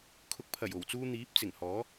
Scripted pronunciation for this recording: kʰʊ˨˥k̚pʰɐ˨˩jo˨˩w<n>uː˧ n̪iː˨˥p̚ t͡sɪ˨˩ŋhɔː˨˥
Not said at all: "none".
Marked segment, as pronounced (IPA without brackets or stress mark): t͡s